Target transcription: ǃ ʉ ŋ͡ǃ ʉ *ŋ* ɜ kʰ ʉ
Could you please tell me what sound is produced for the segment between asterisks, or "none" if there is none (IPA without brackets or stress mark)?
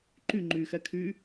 x